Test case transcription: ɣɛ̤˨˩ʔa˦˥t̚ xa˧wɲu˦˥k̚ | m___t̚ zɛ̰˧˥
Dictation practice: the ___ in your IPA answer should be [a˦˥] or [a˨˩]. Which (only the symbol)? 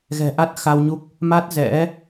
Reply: a˦˥